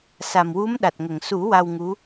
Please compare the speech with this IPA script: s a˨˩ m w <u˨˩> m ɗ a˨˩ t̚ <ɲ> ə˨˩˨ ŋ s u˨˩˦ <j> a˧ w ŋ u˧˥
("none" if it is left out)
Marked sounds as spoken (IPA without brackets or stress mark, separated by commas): u˧˥, ŋ, w